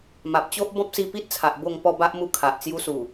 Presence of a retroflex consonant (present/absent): absent